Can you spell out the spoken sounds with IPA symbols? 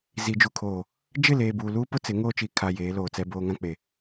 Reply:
zi˨d͡ʒu˨kʰoː˨ | d͡ʒɪ˦˨leː˨buː˨luː˦ pʊ˦ t͡sɪ˨˦ŋoː˦ t͡ʃi˨kʰa˨ jeː˨˦loː˨ t͡sɛ˦ boː˦ŋã˦ k͡pe˨

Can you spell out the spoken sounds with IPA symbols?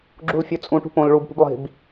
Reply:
ɡ͡ǁulfʲʊ t͡sʼũ ʈṳpõl ɭub pṳblˠi̤b

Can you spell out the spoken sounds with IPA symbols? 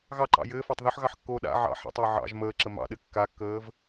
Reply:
ɣɑǃɑ̰ jɘːfɑtˤ ðoħɣɑħkːoː ɗa̰ ʕɑ̰ ħa̰tˤɘː ʕɑ̰ʒ məːǁə mɑ̰ɗɘ kːakːəːv

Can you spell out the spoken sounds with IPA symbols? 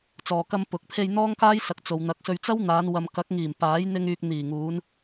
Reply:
t͡sɔː˨kɐ˧m pʊ˨˥k̚ pʰe˧jn̪ɔː˥ŋkaː˥jsɐ˨˥k̚ t͡so˨wn̪ɐ˨˥k̚sɵ˧ɥ t͡sɐ˥wn̪aː˨˧n wɐ˨mkɐ˨˥k̚ ŋiː˨˩mpaː˨˥j n̪ɪ˧ŋyː˨k̚ n̪iː˨˩ŋuː˨˧n

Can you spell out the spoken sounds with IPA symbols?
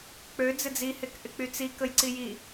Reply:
k͡pø d͡zɪd͡zihek ʔɪk͡pyt͡si kəjǀiji

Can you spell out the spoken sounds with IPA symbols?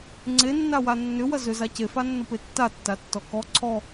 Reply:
ŋ͡ǀenːa wanːʏ wɐzʏza cefanːʊpe tːatːatːɔ kɔ ǀʰɔ

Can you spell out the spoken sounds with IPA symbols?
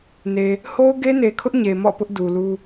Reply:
ne˨ | ho˦ʊ̯ɡe˦ne˨kʰʊ˦ʔ ɲe˨mɔ̰˦˨pʊ˦ʔ du˨lu˦

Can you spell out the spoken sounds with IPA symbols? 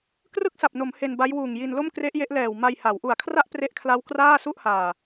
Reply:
krɯ˥˩k̚sa˨˩p̚no˩˦m he˧nba˦˥jwuː˨˩ŋji˧n lo˥˩mkre˦˥ʔje˦˥ʔ lɛː˨˩wma˧j ha˩˦wʔu˨˩a̯kʰra˥˩ʔ pre˦˥ʔkʰla˦˥w kraː˥˩ su˥˩ʔhaː˨˩

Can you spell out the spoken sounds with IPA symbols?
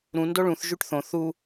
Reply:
ɾũ ndoɭũθ ʒyʈθõ θu

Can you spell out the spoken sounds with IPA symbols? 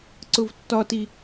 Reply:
ǀʊvtːɒti

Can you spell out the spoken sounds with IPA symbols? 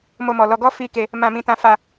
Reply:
mo˧mɔ˨lɔ˧ ɡɔ˦fi˧ ke˧ | mã˧mĩ˧ tã˧ fa˧

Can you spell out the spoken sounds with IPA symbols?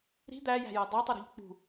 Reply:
ɾi̤ d̪æjæ̤jɜ dˤætˤʊɾṳʎ k͡pṳ

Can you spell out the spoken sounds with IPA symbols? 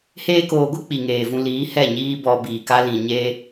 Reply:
heː˦koː˧ɡʷɨ˦ k͡pi˨ŋeː˨vũ˧liː˨˦ hɛ˦˨ ɲiː˦bɔ˧ biː˨ka˦ lĩ˨ɲeː˦

